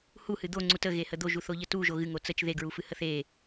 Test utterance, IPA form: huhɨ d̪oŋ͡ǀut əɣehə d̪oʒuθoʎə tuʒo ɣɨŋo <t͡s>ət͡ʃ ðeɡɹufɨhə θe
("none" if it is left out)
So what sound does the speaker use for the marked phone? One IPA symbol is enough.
t͡s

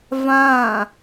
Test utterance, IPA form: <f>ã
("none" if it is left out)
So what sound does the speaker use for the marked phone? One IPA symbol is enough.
v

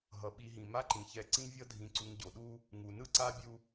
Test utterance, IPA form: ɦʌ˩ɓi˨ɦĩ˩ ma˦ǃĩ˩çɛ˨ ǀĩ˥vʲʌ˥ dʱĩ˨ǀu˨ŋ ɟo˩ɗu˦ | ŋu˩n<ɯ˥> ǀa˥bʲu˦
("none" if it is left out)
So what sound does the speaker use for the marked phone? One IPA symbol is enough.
ɯ˥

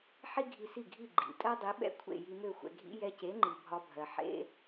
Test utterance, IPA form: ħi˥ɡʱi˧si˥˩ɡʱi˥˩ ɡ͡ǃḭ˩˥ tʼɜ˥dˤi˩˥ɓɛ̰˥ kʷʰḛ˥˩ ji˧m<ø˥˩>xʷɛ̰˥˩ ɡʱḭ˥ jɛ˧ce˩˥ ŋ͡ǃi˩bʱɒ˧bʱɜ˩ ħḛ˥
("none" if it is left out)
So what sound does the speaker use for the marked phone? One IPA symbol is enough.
ø˥˩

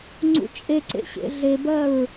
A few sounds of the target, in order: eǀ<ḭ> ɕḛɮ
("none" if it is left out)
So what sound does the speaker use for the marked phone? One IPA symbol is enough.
ḛ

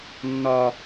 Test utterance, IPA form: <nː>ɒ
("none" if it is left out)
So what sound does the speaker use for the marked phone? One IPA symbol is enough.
nː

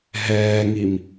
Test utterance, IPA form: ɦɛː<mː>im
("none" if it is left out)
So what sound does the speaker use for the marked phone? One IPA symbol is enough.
ŋ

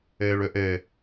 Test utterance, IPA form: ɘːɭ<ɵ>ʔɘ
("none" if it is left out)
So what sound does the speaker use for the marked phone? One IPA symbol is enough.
ɵ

